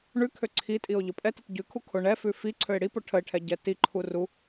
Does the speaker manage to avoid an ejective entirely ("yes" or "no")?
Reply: no